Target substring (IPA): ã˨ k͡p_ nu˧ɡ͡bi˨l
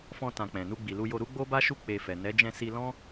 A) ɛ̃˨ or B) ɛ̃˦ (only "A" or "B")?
A